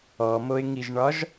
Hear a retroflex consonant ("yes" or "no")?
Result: yes